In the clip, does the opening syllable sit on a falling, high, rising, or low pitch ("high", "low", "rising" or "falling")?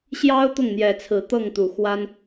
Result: high